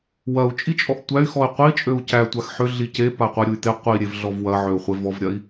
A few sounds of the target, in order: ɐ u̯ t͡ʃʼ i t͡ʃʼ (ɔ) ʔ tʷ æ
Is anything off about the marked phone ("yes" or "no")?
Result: no